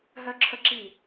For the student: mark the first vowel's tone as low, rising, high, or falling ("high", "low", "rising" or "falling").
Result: high